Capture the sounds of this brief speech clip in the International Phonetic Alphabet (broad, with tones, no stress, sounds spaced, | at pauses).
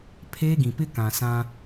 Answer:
pʰ eː˦ ɡ ĩ˨ p ɪ˦ k ã˨ s ã˦